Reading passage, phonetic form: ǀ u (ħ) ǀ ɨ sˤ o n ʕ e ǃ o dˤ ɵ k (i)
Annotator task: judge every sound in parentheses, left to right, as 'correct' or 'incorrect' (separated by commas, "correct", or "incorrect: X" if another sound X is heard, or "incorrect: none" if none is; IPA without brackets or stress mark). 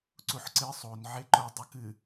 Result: correct, incorrect: ɨ